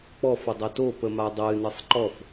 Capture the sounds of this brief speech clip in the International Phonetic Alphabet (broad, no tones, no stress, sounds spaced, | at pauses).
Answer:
k͡p ɔ f ə dˤ a t o p ə m a dˤ ɨ n ɨ sˤ ǃ ɔ f